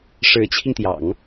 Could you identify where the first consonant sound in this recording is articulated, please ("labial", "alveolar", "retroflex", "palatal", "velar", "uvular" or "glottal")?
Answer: retroflex